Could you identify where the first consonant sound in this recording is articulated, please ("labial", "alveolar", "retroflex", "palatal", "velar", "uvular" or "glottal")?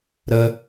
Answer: alveolar